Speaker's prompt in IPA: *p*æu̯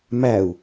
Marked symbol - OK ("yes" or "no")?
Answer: no